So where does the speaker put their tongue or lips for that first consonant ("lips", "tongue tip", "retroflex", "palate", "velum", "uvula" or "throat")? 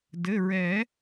tongue tip